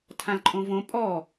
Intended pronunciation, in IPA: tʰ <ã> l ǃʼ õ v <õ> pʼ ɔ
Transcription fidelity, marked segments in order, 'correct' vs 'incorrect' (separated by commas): correct, correct